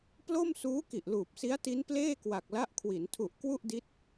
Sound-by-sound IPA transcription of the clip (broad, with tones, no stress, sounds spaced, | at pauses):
p l o˥˩ m s uː˦˥ k i˨˩ ʔ l uː˨˩ p̚ s i˦˥ a̯ t i˦˥ n p l eː˥˩ k w a˨˩ k̚ l a˦˥ ʔ kʰ w i˩˦ n tʰ u˨˩ ʔ k w u˥˩ ʔ d i˦˥ t̚